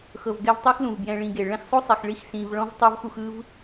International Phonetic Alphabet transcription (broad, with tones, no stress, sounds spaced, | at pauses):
x ɤ˨ v ɡ ɛ˦ v tˤ ɯ˥ x l ũ˩ v b j ɛ̃˨ ɭ ĩ˨ ɡ e˩ ɭ ɛ̃˦ x sˤ o˥ sˤ ɛ˨ x ɭ i˦ x s ĩ˨ v ɭ ɔ̃˥ v tˤ ɤ˥ v x u˦ x ɯ˥ v